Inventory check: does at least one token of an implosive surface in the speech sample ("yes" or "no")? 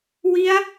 no